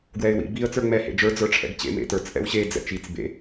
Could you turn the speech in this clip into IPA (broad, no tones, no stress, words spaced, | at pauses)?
ɡwɛɪ̯wḭ biə̯ t͡sə˞ŋ͡mɛ hḛd͡ʒə˞ d͡zə˞ʈ͡ʂʰɛ̰ɡt͡ɕḛ mḛtə˞t͡s ʔɛ̰wɕe d͡zɛ̰t͡ʃit͡s bḛ